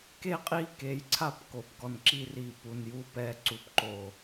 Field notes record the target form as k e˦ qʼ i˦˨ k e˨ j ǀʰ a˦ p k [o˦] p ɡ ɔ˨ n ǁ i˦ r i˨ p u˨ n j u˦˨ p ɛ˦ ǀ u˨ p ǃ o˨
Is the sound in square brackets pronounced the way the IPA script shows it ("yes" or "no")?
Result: no